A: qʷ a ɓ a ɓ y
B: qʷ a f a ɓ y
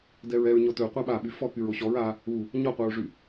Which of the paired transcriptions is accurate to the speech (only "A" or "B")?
A